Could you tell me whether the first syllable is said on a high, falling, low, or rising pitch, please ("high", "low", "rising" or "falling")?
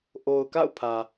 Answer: low